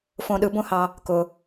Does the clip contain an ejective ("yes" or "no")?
no